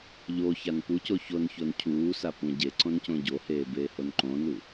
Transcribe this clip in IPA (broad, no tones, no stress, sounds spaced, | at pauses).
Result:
ʎ o ç a n p u c o ç o n ç o n cʰ uː s a p ũ ɟ e ǀ õ n c õ ɟ o h eː b eː h o n ǃ õ n u